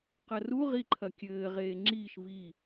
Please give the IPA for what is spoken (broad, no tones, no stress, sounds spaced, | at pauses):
q ɐ r u ʁ i ǃʰ ɐ kʲ ɘː ʁ eː ŋ͡ǁ iː ʃ v i